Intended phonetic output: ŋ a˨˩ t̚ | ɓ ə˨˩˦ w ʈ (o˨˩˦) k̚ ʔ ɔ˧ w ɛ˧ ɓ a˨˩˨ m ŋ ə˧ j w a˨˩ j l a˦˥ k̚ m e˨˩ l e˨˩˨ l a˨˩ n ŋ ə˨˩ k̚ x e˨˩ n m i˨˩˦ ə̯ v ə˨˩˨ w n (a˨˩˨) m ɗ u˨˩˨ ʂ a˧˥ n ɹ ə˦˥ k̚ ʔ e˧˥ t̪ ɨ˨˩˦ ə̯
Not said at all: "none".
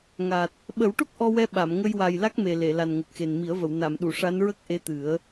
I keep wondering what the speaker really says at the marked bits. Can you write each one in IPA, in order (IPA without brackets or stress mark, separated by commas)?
o˦˥, a˨˩˨